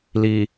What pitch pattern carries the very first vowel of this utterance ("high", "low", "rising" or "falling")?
low